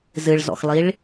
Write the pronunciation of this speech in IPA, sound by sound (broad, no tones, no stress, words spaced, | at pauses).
zɨɭzɔ̰xlˠiɭ